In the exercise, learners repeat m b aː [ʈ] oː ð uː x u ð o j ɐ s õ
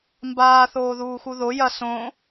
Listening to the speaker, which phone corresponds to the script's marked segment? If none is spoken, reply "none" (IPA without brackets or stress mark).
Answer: θ